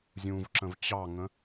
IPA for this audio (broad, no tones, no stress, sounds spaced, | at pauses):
zʲ ũ v ǁ ə̃ v t͡ɕ ɑ ŋ ə̃